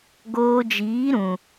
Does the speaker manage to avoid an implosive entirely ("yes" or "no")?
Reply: yes